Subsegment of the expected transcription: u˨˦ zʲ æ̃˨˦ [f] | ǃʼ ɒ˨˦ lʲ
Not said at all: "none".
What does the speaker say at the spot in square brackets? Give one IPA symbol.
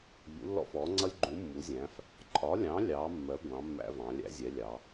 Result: f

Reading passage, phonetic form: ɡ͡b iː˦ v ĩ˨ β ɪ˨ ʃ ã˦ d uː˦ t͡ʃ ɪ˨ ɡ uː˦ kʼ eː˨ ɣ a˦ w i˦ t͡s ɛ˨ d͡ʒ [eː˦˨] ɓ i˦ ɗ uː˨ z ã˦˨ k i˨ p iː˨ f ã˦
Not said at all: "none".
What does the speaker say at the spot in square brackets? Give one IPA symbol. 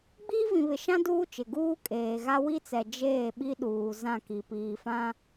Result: eː˦˨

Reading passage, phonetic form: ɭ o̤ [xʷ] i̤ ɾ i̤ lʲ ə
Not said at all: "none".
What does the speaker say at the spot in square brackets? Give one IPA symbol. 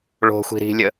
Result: xʷ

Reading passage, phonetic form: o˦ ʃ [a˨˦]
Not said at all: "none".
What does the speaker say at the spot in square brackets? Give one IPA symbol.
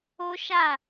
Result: a˦˨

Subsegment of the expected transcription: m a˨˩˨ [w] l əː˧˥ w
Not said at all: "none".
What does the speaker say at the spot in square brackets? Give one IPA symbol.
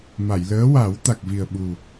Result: j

